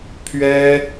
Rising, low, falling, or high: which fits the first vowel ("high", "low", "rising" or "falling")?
high